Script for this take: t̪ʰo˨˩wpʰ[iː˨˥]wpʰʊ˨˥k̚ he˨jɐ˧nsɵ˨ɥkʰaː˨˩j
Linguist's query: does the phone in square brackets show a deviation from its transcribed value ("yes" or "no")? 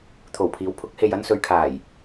no